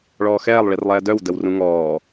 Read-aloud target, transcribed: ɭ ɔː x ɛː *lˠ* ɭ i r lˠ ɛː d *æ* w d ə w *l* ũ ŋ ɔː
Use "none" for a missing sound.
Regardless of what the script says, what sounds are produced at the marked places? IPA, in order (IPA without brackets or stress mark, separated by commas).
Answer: lˠ, œ, r